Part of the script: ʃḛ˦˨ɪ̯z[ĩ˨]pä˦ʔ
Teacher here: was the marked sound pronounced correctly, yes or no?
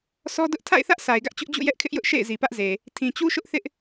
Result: no